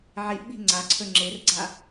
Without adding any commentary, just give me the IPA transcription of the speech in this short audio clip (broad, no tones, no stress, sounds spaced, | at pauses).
ʕ i ʔ ɓ i̤ ŋ͡ǀ a ǀʰ ɵ ŋ͡ǁ e r ɡ͡ǀ a